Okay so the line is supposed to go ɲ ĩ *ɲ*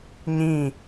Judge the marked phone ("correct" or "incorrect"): incorrect